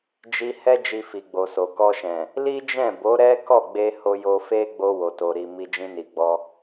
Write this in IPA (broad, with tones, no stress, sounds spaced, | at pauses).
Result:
d͡ʒ i˧ h ɛ˦ d͡ʒ i˧ f i˨ ɡ͡b o˨ s o˨ k ɔ˧ ʃ ɛ̃˨ | l i˦ d͡ʒ ɛ̃˦˨ b o˨˦ ɾ ɛ˦ k ɔ˦˨ ɡ͡b e˧ h o˧ j o˧ f e˦ ɡ͡b o˧ w o˨ t o˨ ɾ i˨ m i˧ d͡ʒ ĩ˧ n i˨ ɡ͡b ɔ˧